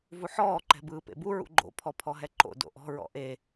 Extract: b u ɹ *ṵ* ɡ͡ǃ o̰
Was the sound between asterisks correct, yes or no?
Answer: yes